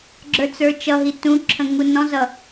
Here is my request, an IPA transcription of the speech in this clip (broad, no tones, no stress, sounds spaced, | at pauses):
ɡ͡ǁ ə˞ t͡s ə˞ t͡ʃ ʌ ɦ i t ũ ǁʰ ə̃ ŋ u n ɔ̃ z ʌ